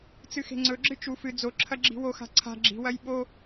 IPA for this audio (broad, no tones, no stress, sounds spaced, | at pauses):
t͡s ɨ x e̤ ŋ͡ǀ ɵ ɡ͡ǁ ɨ t͡ʃ u f ɨ d͡z o ǁʰ ɐ ɡ͡ǁ i̤ w o x a̤ ǀʰ a̤ ɡ͡ǁ i̤ w ɐ j ɓ o